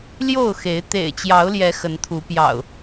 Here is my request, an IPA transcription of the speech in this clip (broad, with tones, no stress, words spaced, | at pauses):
ljo˥˨ʊ̯xe˨˦ɪ̯ t̪ḛ˨˩ɪ̯ t͡ɕjɑ˨˦ʊ̯ljɛ˨˦ xə˨˦nt̪ʰu˨˦ pjɑ̰˨˩ʊ̯